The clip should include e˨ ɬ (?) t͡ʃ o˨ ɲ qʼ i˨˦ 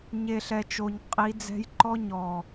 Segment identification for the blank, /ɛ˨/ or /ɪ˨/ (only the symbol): ɛ˨